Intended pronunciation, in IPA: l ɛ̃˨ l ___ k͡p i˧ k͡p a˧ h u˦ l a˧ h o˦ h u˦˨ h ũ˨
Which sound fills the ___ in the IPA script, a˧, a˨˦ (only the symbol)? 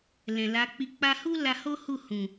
a˨˦